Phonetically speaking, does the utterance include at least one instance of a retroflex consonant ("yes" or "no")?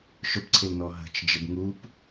no